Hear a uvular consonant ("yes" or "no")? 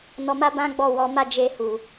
no